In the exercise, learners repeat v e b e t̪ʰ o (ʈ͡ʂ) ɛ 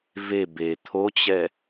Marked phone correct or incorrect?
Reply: incorrect